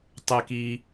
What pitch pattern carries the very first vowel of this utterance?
low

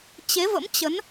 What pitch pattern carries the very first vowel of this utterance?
rising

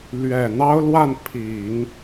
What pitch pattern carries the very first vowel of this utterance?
low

